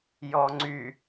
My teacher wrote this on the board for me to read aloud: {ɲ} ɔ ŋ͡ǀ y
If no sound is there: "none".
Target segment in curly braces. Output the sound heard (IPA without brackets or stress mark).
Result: j